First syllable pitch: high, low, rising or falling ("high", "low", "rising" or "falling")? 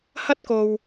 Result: high